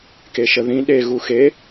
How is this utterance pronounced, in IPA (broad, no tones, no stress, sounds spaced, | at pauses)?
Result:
k e ʃ ə ð ĩ ɗ e ɣ u x e